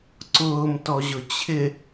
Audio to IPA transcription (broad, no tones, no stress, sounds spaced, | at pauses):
ǀ ʊː m t ɔ ʑ ʊ t͡ɕʰ ɪ